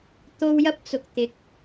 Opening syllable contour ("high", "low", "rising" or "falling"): high